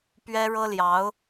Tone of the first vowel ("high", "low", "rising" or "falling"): high